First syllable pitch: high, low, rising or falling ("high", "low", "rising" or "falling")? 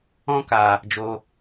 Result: high